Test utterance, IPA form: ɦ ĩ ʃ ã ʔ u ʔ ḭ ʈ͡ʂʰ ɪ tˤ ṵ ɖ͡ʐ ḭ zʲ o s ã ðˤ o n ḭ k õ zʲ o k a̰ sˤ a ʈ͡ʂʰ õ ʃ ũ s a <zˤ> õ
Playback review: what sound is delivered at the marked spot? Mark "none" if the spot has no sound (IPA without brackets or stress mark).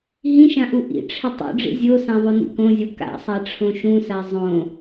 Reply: zˤ